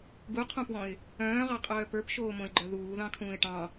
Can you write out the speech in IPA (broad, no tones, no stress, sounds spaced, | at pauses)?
ɡ u qʰ ũ p w ɔ̃ ɪ̯ | œ̃ː ʁ ɑ qʼ œː p ə˞ p ʃ oː m õ ɪ̯ ɡ͡ǃ œ ð uː ð ɑ̃ kʰ ũː ɪ̯ ʈ ɑ̃